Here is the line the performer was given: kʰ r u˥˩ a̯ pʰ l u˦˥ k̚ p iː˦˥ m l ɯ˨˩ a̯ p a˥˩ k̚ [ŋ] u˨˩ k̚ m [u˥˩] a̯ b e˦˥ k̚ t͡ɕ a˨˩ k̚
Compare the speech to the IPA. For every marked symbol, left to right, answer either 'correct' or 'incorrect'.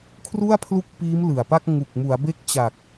correct, incorrect

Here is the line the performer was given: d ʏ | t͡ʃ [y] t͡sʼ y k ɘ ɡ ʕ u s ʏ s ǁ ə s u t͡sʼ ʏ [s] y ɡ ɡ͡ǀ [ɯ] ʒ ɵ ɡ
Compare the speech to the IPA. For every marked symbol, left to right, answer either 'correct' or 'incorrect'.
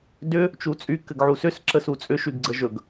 incorrect, incorrect, incorrect

